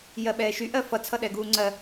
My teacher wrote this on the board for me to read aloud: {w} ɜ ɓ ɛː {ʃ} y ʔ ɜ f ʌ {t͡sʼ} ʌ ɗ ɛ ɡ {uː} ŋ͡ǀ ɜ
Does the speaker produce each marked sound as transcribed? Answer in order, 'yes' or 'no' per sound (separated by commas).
no, yes, no, yes